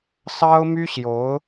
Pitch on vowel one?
high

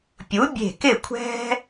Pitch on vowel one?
rising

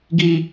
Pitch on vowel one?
low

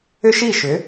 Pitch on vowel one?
high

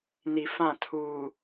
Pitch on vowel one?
low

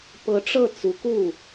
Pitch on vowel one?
rising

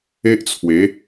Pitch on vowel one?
high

